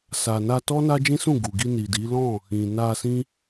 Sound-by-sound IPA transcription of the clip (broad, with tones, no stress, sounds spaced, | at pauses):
s a˨ n a˧ t ɔ˦ n a˦ d͡ʒ ĩ˦ s ũ˦˨ ɡ u˨ ɡ i˧ n i˨ d i˨˦ l ɔ̃˦˨ | ĩ˨ n a˧ s ĩ˦